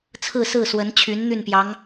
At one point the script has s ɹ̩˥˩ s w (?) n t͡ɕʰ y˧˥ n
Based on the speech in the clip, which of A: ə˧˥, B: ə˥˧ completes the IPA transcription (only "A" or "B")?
A